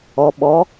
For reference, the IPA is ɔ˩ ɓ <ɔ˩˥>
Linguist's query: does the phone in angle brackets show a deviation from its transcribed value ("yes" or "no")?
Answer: no